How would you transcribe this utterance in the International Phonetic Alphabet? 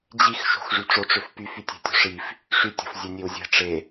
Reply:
d͡ʑ i x ʃ o̤ x ʐ y ʈ͡ʂ o ʈ͡ʂ ø f p y f y tʲ e̤ tʲ o̤ ʂ i f | ʂ y tʲ o̤ f zʲ e nʲ e w zʲ e̤ ʈ͡ʂ e

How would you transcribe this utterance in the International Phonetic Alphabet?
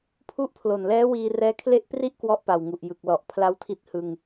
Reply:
pʰ u˦˥ ʔ pʰ l o˨˩ n l ɛː˦˥ w iː˧ r ɛː˦˥ kʰ l e˥˩ ʔ p r i˥˩ ʔ k w ɔ˦˥ ʔ p a˨˩ w ŋ u˨˩ ʔ j ɯ˨˩ k̚ l ɔ˨˩ ʔ pʰ l a˦˥ w tʰ i˦˥ t̚ h ɯ˧ ŋ

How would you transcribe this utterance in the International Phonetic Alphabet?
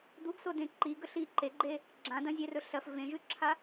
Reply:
d̪ u ɡ s o d ẽ ǃ i ɡ ɵ ɬ i ǃ e ɡ͡ǃ e | ɡ͡ǁ ã d ɐ̃ zʲ e r ɵ ɬ ɐ f v ẽ ʒ ʉ ǁʰ a

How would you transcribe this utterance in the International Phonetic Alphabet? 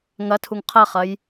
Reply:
ŋ ɐ tʰ u ŋ qʰ ɐ χ ɐ j

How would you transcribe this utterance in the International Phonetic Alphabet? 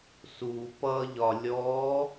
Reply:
s u p ʌ ʎ ɒ lʲ ɔ

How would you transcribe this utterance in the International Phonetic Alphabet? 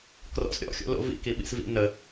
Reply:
k r ɔ̰ s ɾʲ ɔ̰ xʲ o̰ l o̰ v ḭ k i ɓ ḭ s v ḭ n ə

